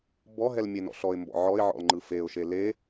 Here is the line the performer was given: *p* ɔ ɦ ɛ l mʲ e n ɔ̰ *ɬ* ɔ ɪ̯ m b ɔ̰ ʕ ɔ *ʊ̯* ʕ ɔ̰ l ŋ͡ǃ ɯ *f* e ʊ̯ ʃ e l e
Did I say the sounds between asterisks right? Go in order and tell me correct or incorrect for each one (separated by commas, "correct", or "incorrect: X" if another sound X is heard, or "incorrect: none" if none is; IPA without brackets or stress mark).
incorrect: b, correct, incorrect: ɪ̯, correct